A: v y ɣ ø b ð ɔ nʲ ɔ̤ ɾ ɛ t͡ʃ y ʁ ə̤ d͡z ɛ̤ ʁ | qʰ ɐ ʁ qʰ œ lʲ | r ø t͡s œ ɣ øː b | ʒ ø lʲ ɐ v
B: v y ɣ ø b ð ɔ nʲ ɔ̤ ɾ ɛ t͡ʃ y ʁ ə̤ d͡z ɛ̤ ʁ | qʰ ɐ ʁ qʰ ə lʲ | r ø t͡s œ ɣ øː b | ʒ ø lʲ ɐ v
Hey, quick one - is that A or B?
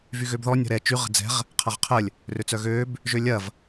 B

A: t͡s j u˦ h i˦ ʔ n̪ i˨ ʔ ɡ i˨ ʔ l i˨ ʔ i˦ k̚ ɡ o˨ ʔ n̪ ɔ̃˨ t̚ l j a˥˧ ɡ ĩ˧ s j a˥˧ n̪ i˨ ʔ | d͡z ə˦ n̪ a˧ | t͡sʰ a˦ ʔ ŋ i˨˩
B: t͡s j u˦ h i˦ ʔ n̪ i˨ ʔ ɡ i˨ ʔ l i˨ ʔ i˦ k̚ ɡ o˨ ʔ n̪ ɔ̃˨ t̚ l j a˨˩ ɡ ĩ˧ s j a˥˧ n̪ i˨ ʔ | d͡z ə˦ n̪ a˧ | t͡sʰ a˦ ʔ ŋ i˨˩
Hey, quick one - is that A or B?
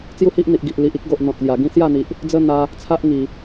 B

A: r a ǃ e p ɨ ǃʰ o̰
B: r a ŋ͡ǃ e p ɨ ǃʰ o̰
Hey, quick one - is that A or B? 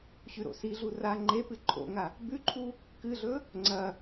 B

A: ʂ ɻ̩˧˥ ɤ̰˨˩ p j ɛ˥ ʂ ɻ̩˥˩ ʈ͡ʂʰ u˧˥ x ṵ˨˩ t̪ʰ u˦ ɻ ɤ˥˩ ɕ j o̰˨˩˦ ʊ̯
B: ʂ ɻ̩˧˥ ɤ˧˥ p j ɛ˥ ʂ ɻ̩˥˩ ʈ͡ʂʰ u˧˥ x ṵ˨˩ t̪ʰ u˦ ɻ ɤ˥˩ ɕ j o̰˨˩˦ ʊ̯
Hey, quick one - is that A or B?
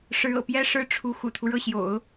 A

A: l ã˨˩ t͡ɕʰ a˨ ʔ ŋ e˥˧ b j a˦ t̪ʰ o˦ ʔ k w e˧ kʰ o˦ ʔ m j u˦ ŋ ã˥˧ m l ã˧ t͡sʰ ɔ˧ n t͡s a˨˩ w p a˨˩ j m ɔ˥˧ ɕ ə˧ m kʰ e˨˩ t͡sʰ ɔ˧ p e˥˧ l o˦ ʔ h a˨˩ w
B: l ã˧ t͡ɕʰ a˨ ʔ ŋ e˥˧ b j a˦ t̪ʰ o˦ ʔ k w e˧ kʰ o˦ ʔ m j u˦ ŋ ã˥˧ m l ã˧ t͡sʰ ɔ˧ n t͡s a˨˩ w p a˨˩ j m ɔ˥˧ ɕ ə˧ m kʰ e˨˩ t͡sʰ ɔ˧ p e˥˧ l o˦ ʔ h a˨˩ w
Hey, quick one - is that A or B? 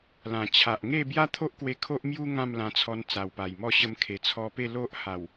A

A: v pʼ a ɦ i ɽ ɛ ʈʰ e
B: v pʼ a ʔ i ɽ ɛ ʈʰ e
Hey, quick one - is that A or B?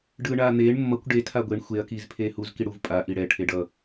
B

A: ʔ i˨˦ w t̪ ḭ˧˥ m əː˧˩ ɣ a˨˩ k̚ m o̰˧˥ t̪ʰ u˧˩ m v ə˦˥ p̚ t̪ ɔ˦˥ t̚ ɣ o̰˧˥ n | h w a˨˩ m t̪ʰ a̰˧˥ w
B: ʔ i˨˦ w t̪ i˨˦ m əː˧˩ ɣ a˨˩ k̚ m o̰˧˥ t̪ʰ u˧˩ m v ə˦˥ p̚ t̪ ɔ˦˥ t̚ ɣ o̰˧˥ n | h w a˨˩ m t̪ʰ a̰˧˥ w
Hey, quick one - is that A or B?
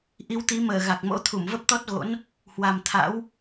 B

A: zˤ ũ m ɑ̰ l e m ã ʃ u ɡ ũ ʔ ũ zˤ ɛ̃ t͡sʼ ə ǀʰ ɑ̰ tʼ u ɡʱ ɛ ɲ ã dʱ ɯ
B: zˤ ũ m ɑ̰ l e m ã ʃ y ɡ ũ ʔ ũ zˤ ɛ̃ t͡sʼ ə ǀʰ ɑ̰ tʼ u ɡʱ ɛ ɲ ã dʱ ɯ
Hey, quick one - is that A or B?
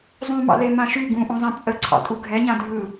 B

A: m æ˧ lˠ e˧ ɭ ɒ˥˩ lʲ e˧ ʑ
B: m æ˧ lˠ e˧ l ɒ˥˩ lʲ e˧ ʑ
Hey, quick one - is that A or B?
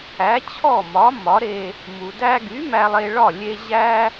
A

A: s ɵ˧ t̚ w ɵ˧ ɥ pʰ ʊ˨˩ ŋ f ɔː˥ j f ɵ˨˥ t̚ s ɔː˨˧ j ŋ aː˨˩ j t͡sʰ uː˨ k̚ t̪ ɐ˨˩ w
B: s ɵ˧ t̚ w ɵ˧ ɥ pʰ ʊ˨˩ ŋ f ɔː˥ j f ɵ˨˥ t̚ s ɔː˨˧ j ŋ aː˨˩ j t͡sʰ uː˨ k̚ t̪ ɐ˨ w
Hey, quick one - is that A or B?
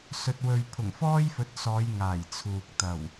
A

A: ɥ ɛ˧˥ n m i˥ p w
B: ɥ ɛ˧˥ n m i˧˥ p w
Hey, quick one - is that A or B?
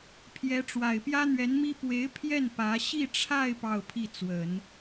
A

